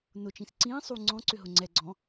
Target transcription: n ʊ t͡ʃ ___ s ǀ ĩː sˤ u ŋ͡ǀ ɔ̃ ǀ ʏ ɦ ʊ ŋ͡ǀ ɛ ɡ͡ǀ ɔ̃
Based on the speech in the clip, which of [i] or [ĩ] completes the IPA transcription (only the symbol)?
ĩ